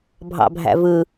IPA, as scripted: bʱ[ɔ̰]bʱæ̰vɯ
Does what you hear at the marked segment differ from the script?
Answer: yes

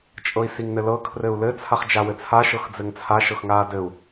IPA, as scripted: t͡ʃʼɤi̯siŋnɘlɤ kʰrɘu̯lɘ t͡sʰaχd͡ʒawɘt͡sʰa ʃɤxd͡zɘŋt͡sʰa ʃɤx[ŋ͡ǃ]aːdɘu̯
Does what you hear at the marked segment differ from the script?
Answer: yes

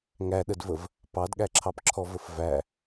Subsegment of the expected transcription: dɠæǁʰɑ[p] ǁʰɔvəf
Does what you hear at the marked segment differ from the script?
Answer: no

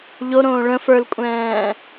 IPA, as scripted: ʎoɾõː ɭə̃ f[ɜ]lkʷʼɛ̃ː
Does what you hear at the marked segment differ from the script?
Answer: yes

